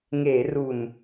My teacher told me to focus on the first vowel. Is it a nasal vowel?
no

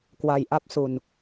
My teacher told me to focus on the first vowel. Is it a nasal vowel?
no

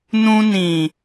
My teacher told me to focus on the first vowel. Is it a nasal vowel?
yes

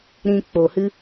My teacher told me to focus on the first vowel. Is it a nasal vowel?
yes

